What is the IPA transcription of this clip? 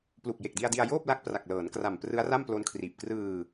plu˨˩k̚je˨˩k̚di˧a̯di˧a̯ joː˥˩p̚la˦˥k̚ pra˨˩k̚lɤː˩˦nkra˨˩m prɯ˦˥a̯ra˥˩mplo˦˥nkʰriː˨˩p̚ krɯː˧

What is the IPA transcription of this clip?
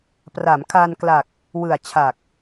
pra˩˦mkʰa˧nkla˨˩k̚ | wɯ˨˩a̯t͡ɕʰa˨˩k̚

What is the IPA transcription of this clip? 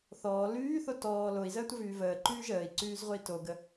θɔː lyːθo tɔː loi̯zəːtʷəvyː vəːǃyː ʒəːi̯ǀyːzʁʷəi̯ toɡə

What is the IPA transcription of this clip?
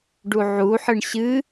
ɖuʕuħɨɳ ɕɨ

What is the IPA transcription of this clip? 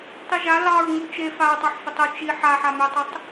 tˤiʒa lɑɹŋu t͡ʃe faɹtˤɑħfʏtˤɵ t͡ʃi ħaħamʏʊ̯tˤʏtˤ

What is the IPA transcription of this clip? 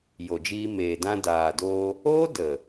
jo˨d͡ʒiː˧ meː˨dã˧daː˨doː˧ | oː˦də˨

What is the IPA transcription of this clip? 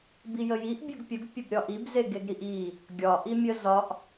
bijəjiʔ bʲəɡpʲəɡ pʲəbɾʲɒʔib zeɡeɡɾiʔi | ɡʲɒ ʔimʲə zɒʔ

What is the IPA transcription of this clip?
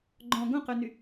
ɡ͡ǃɔ̃ ɡõqøny

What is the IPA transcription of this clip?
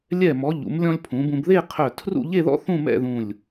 lʲɛ˧˩mɔ˩˧ ʎṵ˩˧mlʲɔ̃˧lʲ pʰũ˩˧bũ˧b ðe˥˧qʰœ˧˩tʰrṵ˥˧ ʎe˥˧ðɔ̰˥ θũ˥˧mɛ̰˥˧ðũ˧˩lʲ

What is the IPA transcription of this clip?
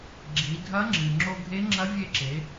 ɡ͡ǁi˩˧ dʱɐ˧˥ŋ͡ǁɨ˩ ŋ͡ǁo˧ɡʱe˧˥ŋ͡ǁɐ˧˥ vʲe˧ǁe˩˧

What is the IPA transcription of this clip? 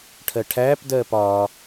ʈʰɜʈʰæːp dɜːpɒː

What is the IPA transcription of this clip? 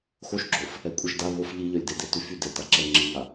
xoʃɡ͡ǁof | ɛkʷʼɛʃda βof ʎiʎœlʲdede tyfy detaǁɛ ŋ͡ǁiŋa

